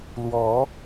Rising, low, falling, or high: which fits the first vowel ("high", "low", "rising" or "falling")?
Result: rising